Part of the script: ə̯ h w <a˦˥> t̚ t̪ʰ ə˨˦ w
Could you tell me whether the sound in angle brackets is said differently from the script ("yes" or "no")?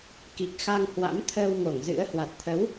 yes